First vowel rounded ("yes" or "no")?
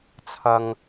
no